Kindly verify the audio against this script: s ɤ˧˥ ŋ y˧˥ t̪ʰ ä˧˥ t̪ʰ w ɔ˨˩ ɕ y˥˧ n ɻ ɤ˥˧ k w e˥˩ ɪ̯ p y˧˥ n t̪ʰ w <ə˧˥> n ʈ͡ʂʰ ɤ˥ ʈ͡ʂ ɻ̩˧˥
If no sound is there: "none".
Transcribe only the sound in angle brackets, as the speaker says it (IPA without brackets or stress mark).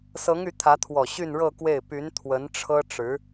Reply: ə˧˥